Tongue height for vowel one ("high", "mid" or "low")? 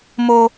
mid